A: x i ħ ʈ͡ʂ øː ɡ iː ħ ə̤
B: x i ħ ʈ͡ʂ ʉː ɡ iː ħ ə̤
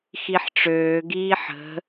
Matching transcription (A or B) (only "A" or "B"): A